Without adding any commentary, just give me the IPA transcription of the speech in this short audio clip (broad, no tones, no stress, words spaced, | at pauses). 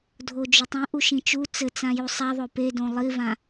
dʱod͡ʒotˤĩ ʔuʃĩt͡ʃu t͡sɘt͡sãju sˤaðˤo pedõ lˠivã